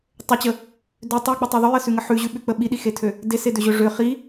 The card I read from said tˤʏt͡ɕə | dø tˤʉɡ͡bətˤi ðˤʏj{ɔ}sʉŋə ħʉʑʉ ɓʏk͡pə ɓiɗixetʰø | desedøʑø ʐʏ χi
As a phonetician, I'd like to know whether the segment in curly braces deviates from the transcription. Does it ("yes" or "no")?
yes